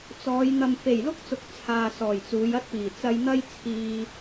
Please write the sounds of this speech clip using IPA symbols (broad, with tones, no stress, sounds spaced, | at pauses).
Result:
t͡s ɔː˨˧ j n̪ ɐ˨ m f e˨˩ j l ʊ˥ k̚ t͡s ʊ˨ k̚ t͡sʰ aː˨ s ɔː˨˩ j t͡s uː˨˧ j ɐ˥ t̚ p iː˨˩ t͡s ɐ˧ j n̪ ɐ˥ j t͡sʰ iː˧